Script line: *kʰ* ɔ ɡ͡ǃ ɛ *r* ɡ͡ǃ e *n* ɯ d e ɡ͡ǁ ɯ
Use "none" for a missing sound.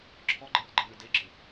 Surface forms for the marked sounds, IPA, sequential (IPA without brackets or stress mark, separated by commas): ǁʰ, r, n